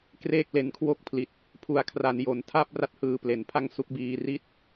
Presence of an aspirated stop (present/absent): present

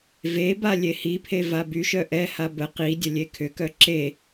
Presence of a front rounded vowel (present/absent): present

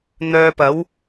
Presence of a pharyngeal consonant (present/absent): absent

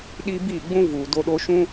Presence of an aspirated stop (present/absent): absent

